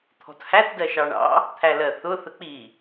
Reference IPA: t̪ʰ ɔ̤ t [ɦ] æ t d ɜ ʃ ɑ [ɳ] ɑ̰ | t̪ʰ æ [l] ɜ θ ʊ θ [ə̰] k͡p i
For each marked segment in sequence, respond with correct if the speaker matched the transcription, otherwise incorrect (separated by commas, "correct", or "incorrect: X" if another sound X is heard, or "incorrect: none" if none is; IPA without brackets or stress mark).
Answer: incorrect: h, correct, correct, incorrect: ə